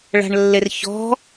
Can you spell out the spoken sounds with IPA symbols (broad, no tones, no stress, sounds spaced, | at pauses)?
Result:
ɭ a̤ ɳ lː e r ç ɔ̤